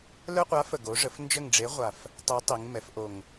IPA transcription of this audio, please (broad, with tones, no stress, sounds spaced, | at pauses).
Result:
l œ˦ qʷ a˨˥ f ə˨˩ ɡ o˨˥ ʐ ə˨˥ f n d͡ʒ ə˦˨ ŋ ɖ͡ʐ e˨˥ ʁʷ a˨˩ f | tˤ e˨˥ tˤ i˩˧ ŋ m ɛ˩˧ f ʔ o˨˩ ŋ